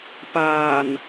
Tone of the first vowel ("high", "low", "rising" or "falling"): low